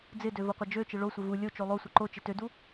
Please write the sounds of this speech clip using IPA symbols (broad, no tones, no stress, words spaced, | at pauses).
d͡zɪdø voqʷɘd͡ʒøt͡ʃɘ ɭosʷɪ vu lʲo t͡ʃolˠosʷɘ ǃo t͡ʃɪtødu